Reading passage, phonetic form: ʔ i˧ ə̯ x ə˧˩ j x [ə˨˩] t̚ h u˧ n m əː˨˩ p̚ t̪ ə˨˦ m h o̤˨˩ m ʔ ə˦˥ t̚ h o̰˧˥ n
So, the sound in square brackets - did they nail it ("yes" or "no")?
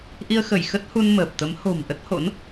no